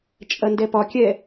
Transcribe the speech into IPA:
t͡ʃʼ ɐ n d ɛ p ɒ kʲ ɛ

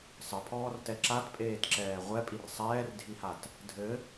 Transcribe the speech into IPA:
sˤ ɘ pʰ ɔː r t ɛ ǁ a t pʼ eː t ǁ ɛː ʁʷ ɛ pʼ i r sˤ ɛː r dʱ i h a t | dʱ ɘ

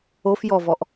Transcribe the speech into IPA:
o f j ɔ v ɔ ʔ

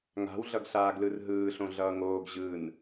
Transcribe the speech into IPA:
ŋ a̤ w ɮ ʌ ɡ ɬ aː ɡ l ɯ r ɦ ɯː ɬ õ ɮ ʌː ŋ oː ɡ ʑ ɯ n

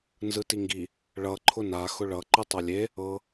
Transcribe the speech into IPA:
n z ɯ t i ŋ ɡ i | ɭ ʌ ǃʰ ʊ n a x ʊ ɭ ʌ ǃ ɯ tˤ ʌ lʲ e | ɤ

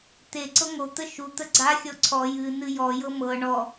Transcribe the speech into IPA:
t̪ e ǀ ɤ ŋ o t̪ ə ʃ u t̪ ə ɡ͡ǀ a xʲ ɔ ǀʰ ɔ j ɨ n ɨ j ɔ j ɤ m ɤ ɳ ɔ

